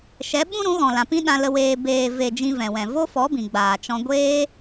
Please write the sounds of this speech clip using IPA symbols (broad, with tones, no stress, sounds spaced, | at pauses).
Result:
ʃ ɛ˨˦ ɓ ũ˦ ɾ ũ˨˦ ɣ ɔ̃˨ l ã˨ p ĩ˦ ɗ ã˧ l ə˧ w eː˧ b eː˨ v e˨ d͡ʒ ĩ˧ v ɛ̃˨ w ɛ̃˨ v o˦ f ɔ˨˦ b ĩ˨ ɡ͡b aː˨ t͡ʃ ɔ̃˧ ɡʷ eː˦